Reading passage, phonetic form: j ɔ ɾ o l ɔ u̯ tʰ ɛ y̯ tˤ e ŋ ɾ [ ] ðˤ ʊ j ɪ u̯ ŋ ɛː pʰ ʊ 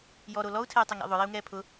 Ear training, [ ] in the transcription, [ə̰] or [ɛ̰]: ɛ̰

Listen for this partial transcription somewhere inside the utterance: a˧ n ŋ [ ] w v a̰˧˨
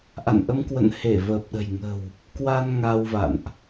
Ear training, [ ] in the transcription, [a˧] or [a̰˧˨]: a˧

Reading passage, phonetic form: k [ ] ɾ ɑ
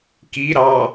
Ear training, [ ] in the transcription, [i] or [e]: i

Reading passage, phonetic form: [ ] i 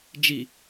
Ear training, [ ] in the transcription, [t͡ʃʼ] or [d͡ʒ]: d͡ʒ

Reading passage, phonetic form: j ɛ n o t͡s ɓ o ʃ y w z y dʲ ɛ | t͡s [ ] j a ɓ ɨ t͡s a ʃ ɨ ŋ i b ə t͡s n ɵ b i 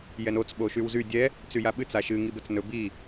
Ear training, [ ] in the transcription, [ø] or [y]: y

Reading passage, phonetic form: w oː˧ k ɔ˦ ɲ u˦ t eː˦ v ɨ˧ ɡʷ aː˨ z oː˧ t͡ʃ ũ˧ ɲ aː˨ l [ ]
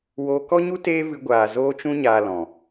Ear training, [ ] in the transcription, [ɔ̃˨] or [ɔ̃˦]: ɔ̃˨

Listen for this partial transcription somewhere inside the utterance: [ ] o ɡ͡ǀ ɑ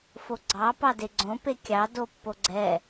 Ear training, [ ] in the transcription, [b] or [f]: f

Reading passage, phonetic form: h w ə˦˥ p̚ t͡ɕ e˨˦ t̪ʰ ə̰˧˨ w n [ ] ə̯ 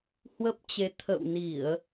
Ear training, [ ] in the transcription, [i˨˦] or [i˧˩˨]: i˧˩˨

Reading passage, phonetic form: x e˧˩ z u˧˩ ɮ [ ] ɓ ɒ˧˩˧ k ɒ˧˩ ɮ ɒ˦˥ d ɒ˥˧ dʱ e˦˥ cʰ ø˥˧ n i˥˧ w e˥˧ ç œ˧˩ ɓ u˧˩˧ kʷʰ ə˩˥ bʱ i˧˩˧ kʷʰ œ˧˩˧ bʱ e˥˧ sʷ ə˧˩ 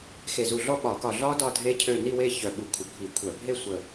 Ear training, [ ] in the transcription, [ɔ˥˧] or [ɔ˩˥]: ɔ˥˧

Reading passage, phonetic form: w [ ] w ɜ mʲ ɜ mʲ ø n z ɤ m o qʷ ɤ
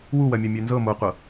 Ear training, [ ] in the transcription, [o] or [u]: u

